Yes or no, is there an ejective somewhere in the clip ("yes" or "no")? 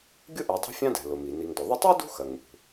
no